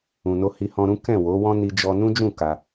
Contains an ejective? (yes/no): no